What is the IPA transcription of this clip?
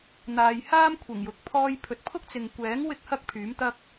n̪ aː˨ j h aː˥ m kʷʰ ɪ˨˩ ŋ j ʊ˨ k̚ pʰ ɔː˧ j pʰ ɵ˨ t̚ pʰ ʊ˥ k̚ t͡s ɪ˨ ŋ kʷ ɛː˨˥ ŋ w ɪ˥ k̚ h ɐ˥ k̚ pʰ yː˨˥ m t̪ ɐ˥ k̚

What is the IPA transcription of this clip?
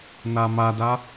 n a m a d a

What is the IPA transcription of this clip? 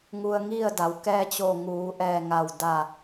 ŋ u˧ ə̯ ŋ i˥˨ ə̯ d a˩˧ w k ɛː˧ t͡ɕ o˧˩ ŋ uː˩˧ ʔ ɛː˧˩ ŋ a˧˩ w d a˧˩

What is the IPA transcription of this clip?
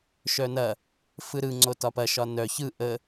ʃ œ n ɐ | f ɯ ɾ ɯ ŋ͡ǀ o t ɒ p ɐ ʃ ɒ n œ ç ɯ ʔ ə

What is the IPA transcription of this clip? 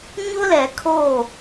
ɲ ʊ˦ l ɛ˨ kʰ o˦˨

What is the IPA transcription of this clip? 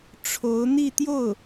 ʈ͡ʂʰ o˧˥ ʊ̯ n̪ i˥˧ t̪ j o˥˩ ʊ̯

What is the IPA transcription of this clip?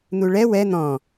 n̪ u ɭ ɛ w ɛ n̪ ɔ̃

